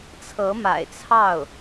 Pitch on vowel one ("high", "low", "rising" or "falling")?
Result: rising